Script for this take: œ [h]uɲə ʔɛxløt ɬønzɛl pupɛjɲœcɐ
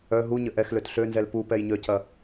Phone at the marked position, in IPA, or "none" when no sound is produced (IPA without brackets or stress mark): ɦ